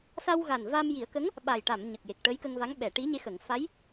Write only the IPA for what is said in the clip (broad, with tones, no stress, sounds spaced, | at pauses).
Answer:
s a˧ w ɣ a˨˩ n v a˧ m j i˨˩˦ ə̯ k ə˧˥ ŋ | ɓ a˨˩ j ʈ a˨˩˨ m ɲ ə˨˩ k̚ j e˨˩ k̚ ʈ ə˧˥ j k ə˧ ŋ v a˧˥ ŋ ɓ ɛ˨˩˨ ʈ i˧˥ ɲ e˧˥ x ə˨˩˨ ŋ f a˧˥ j